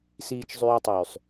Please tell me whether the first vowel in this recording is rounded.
no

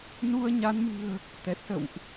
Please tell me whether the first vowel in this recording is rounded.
yes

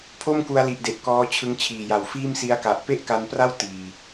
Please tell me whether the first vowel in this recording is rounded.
yes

